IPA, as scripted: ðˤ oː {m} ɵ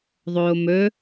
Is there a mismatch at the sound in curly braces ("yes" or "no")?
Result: no